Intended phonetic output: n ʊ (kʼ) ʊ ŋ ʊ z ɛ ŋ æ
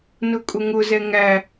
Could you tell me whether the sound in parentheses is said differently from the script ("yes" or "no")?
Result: no